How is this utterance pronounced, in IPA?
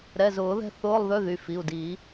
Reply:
ɾ ɛ˩˧˩ z ʊː˨˩˦ ð ɛ̤˥˧ θ ʊː˧˥˧ lˠ ð ø˧˥˧ ð y˩˧˩ f i˩˧˩ u̯ d i˨˩˦

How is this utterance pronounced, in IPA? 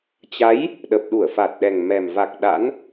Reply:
t͡ɕ a˨˦ j | ɗ ə˨˩ p̚ ɗ u˧˩ ə̯ f a˨˩ t̚ ɗ ɛ˨˩ ŋ m ɛ˨˩ m v a˨˩ k̚ ɗ a̰˧˥ n

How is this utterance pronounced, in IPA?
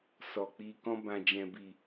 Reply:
s ɔ˨ k͡p i˧ k ɔ̃˧ b ã˨ d͡ʒ ɛ̃˨ b i˨

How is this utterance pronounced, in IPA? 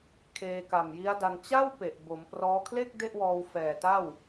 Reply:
kʰ eː˧ k a˨˩ m j i˦˥ a̯ d a˧ n t͡ɕ a˥˩ w p e˨˩ ʔ b o˩˦ m p r ɔː˦˥ kʰ l e˥˩ k̚ d e˥˩ ʔ w ɔː˧ w f ɛː˨˩ t a˥˩ w

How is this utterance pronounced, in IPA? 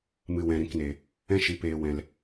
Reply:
m ɨ˨ w ɛ̃˨ ɾ ĩ˨ k n e˨ | ɛ̃˦ ʃ i˨ p eː˨ w ɛ̃˨ l

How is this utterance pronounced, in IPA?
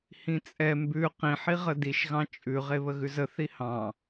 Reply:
h ĩ t͡sʼ ɛ m b ʉ q ĩ ħ i ʁ ə d i ʃ ɣ ɑ̃ t͡ʃʼ ʉ ʁ e β ə ɣ ʉ z ə θ i h ɑ̃

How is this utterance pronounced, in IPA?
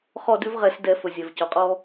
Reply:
χ ɔ˦˨ d ʉ˦ v ʁ ɛ˧˩˧ s d ɛ˧˩˧ f ɵ˩ zʲ ɛ˩ v c ɔ˩ qʼ ɔ˦

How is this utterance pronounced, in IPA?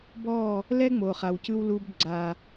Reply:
b ɔ˦˨ | l ɛ˦ ŋ͡m o˨ χ a˨ w c ɯ˧ w l u˧ b ɡ͡ǀ a˨

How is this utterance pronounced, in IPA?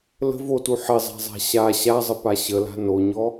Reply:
l ə̤ v o t u ħ ɪ zˤ a̤ zˤ a̤ ɕ a ɕ a zˤ ə p a ɕ ə l a̤ n o ɲ ɔ

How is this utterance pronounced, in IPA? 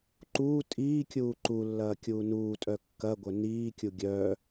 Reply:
ǃ uː tʼ iː kʲ uː ǃ u lː ɐː kʲ uː n uː tʼ œ kː ɐ ɡʷ œ n iː kʲ u ɡʲ œː

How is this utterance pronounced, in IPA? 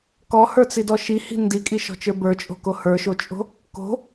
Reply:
k ɔ h ə˞ t͡s i d ɔ ʃ i h i̤ n d i kʼ i ʃ ɔ̤ t͡ʃ ə˞ b ə˞ t͡ʃʼ o̤ k o h ə˞ ʃ o t͡ʃʼ o̤ | k o̤

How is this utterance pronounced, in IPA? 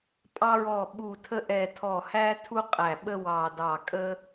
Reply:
pʼ ɑ˧ ɹ ɔ˨˩ ɓ u˨˩ tʰ ə˧ ʔ ɛ˨˩ tʰ ɔ˨˩ h æ˧ tʰ u˧ qʼ æ˨˩ ɓ ə˧ w ɑ˨˩ d ɑ˨˩ kʼ ə˧

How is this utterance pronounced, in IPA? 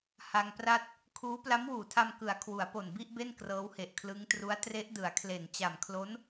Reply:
h a˧ ŋ p r a˥˩ t̚ | kʰ uː˦˥ p l a˦˥ m w uː˨˩ tʰ a˧ m k ɯ˩˦ a̯ kʰ w u˩˦ a̯ p o˨˩ n b i˥˩ ʔ b e˥˩ n k r ɤː˦˥ w h e˨˩ ʔ kʰ l ɯ˦˥ ŋ t r u˦˥ a̯ t r e˦˥ ʔ d ɯ˩˦ a̯ kʰ l e˨˩ n t͡ɕ a˨˩ m kʰ l o˦˥ n

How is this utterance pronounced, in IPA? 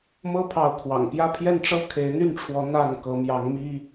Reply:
m ɤ˥ pʰ ɑ˧˥ ʊ̯ kʰ w ɑ̰˨˩ ŋ p j ä˥˧ pʰ j ɛ˥˩ n ʈ͡ʂ ɤ˥ kʰ e˧˥ ɪ̯ n̪ y˥˩ n ʈ͡ʂʰ w ɔ˧˥ n̪ a˥˩ n k ɤ˧˥ m j ɑ˧˥ ŋ m i˥

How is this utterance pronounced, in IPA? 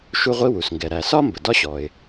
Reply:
ʃ u˥ ʁʷ i˥ w u˩ s ŋ ɡ ɛ˩ ɾ æ˩ s ɒ˥ m b ə˩ d ɒ˥ ɕ ɔ˩ ɪ̯

